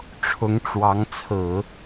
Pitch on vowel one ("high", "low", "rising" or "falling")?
rising